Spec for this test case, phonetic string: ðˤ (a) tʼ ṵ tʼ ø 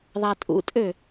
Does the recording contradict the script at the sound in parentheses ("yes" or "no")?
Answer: no